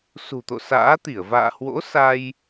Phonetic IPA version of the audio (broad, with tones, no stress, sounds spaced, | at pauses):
s ṳ˨˩ t̪ o̰˧˨ s a̰ː˧˥ t̪ i˧˩ ə̯ v a̰ː˧˨ h w o̰˧˥ s a˧ j